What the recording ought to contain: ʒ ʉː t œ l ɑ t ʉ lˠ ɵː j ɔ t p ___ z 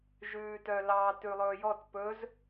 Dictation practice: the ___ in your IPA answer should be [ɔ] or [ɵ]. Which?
ɵ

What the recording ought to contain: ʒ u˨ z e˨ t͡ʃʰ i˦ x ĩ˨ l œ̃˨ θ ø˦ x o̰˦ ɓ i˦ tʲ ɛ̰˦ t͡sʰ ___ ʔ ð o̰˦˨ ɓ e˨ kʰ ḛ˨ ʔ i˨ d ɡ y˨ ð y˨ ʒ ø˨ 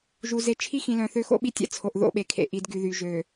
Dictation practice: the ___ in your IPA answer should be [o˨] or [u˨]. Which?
o˨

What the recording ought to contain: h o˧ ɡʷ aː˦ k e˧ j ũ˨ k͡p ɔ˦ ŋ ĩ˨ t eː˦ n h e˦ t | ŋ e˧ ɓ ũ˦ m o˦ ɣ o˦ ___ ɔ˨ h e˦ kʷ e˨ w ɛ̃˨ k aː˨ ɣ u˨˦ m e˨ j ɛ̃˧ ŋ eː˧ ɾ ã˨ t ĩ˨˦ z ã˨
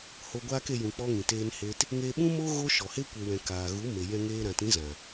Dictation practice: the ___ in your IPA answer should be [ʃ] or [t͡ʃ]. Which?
ʃ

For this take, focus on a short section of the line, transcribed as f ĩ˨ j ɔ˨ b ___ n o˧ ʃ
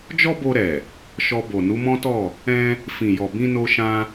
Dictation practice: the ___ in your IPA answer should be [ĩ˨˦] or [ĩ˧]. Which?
ĩ˧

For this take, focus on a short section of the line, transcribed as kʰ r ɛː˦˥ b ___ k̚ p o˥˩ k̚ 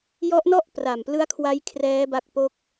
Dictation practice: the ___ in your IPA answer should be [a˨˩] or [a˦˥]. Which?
a˦˥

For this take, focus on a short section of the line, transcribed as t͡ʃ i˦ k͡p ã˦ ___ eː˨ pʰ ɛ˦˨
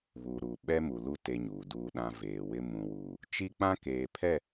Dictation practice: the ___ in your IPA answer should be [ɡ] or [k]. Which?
k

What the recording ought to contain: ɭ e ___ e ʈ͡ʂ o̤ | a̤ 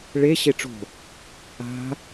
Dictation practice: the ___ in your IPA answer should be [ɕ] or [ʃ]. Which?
ɕ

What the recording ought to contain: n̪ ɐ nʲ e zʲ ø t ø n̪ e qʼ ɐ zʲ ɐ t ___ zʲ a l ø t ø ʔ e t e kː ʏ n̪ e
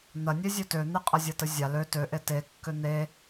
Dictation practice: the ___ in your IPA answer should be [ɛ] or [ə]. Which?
ə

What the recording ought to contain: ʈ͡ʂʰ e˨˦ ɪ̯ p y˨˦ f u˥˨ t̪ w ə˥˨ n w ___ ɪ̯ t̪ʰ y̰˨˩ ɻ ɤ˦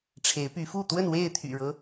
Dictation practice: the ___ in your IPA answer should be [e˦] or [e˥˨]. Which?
e˥˨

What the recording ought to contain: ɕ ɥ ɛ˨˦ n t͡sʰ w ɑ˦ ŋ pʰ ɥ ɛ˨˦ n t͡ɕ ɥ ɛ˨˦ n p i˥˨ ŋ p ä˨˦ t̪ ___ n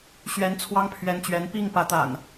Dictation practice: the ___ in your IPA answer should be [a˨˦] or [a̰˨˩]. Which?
a̰˨˩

